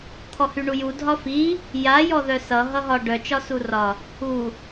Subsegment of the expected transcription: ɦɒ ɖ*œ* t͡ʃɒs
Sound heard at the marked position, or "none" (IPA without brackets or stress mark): œ